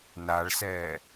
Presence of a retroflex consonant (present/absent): present